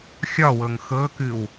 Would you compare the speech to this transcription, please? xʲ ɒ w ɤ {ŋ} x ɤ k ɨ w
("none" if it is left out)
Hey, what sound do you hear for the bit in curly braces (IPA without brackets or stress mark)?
ŋ